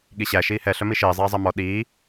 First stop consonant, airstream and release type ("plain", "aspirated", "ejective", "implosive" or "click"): implosive